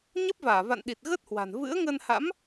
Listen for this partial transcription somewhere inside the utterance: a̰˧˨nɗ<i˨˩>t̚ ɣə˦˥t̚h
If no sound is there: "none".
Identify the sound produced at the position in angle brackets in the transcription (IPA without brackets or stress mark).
i˨˩